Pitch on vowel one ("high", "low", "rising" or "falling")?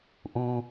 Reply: low